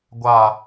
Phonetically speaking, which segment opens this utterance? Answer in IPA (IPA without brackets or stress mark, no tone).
ɡʷ